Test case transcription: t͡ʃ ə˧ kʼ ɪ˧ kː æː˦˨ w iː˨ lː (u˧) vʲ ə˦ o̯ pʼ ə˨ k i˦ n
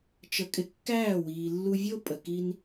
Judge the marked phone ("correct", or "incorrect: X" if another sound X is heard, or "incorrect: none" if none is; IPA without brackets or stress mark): correct